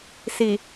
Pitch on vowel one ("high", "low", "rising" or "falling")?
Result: low